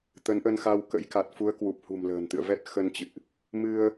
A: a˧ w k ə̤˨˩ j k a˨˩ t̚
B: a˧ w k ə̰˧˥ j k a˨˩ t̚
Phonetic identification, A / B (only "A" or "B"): B